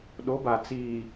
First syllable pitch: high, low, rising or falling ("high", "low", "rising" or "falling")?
rising